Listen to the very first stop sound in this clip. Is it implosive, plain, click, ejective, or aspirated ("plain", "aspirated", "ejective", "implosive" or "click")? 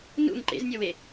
click